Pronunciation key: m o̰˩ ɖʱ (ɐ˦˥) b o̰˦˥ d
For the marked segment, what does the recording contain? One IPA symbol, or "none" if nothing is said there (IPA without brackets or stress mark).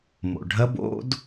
ɐ˦˥